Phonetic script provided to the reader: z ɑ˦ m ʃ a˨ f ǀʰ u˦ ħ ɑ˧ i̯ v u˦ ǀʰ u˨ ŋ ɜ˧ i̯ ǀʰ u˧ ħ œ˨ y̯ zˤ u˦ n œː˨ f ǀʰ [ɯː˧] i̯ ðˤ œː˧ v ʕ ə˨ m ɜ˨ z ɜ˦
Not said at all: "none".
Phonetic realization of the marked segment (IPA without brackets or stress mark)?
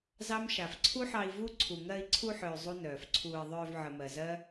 uː˧